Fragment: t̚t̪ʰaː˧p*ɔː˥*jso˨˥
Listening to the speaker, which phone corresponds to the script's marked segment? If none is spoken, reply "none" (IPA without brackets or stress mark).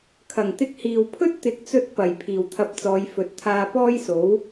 ɔː˥